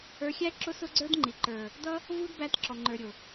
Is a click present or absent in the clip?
present